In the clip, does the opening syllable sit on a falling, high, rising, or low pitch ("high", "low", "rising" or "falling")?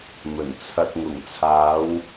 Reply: low